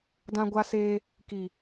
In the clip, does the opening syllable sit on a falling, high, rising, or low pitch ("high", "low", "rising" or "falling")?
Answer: high